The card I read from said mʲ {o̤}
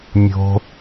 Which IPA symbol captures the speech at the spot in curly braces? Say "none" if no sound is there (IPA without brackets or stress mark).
o̤